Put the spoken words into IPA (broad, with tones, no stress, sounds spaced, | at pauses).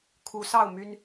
kʰ u˨˦ s ɑ˥˨ ʊ̯ m y˦ n